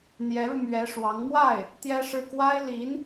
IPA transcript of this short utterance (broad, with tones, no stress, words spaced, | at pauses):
n̪jɛ˧˥ɻu˧mɥɛ˧˥ ʂwɑ˧˥ŋ mwa˥˩ɪ̯ | t̪jɛ˥ʂɻ̩˥˩ kwa˥ɪ̯li˧˥n